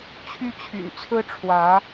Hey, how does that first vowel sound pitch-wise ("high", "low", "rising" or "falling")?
high